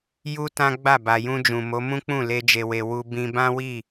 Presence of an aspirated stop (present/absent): absent